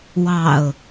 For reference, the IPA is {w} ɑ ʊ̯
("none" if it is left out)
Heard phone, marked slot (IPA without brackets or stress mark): w